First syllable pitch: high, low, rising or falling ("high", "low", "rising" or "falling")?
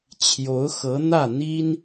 rising